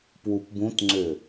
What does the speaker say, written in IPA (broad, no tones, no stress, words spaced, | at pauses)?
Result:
pwupbũtŋ͡ǀʏ